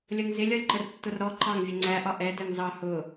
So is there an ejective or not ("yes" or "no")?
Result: no